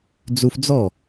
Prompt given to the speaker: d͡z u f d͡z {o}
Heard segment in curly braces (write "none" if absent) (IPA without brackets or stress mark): ɔ